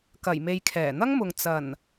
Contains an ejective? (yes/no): no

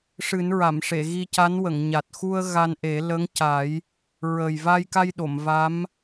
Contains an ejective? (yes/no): no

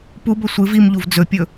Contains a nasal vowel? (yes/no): no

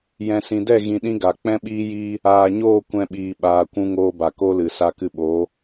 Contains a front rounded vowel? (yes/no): no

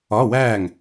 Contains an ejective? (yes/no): no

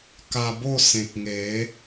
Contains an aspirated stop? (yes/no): no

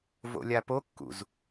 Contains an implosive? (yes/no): no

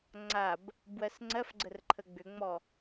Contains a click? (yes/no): yes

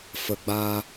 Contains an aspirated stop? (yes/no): no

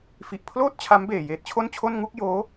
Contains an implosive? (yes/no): no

